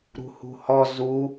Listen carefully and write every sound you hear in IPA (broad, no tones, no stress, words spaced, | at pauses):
ɾṳhṳhɔ zu